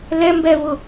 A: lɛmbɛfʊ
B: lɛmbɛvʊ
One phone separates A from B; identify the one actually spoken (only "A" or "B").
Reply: B